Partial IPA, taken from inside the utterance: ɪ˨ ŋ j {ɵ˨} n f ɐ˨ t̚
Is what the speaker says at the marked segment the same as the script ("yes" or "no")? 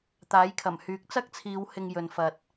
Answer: yes